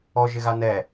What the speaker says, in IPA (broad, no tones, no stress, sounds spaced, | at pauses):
ɔ ʒ ɪ ɣ a n ɛ